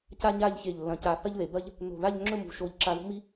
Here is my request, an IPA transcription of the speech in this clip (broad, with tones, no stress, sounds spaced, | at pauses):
c a˥ ɲ a˥˧ ʎ ç e˧˩ ʎ lː ɐ̃˧˩ c a˧˩ θ ɐ˥ ʎ ð e˩˧ b ɐ˥ ʎ | n o̤˧˩ ð a˥˧ ʎ ŋ͡ǁ ɵ˥˧ m ṳ˧ ʃ o˧˩ ʎ ǁ a˧ ð o̤˥ m i˥